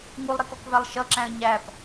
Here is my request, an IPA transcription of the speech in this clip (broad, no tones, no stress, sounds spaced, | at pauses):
ŋ u lˠ ɾ i k ɔ k v æ lˠ ʃ ʌ ǁ æ̃ ə̯ ɲ æ p